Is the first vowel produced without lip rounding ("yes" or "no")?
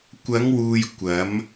yes